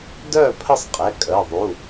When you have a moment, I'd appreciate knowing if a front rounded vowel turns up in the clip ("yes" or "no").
yes